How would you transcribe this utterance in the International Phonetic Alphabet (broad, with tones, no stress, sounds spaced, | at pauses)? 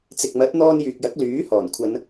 t͡s ɪ˨ k̚ m ɐ˨˥ t̚ n̪ ɔː˧ n j yː˨ k̚ j ɐ˨˥ k̚ l yː˨˥ h ɔː˨˩ n kʷʰ ɐ˨˧ n